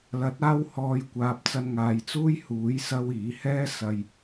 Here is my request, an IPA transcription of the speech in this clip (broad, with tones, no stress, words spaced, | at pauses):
lɐ˨˥t̚aː˧whɔː˨˧jkʷaː˨p̚ t͡sɐ˧nŋaː˨˧jt͡suː˥j huː˨˥jsɐ˧w iː˨˥hɛː˥ sɐ˧j